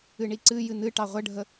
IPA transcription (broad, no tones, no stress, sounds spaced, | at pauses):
ɨ ɳ i ǀ ɨ j ɨ n ɨ ʈ ɑ ʁʷ ə ɖʱ ə